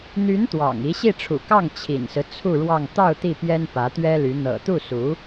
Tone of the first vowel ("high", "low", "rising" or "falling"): rising